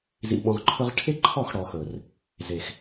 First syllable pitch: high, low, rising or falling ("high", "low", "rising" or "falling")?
low